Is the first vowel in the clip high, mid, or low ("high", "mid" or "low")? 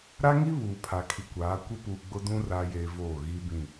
low